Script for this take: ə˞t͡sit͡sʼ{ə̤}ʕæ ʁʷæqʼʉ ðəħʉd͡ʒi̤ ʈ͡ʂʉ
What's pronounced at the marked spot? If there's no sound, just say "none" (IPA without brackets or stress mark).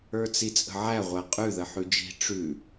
ə̤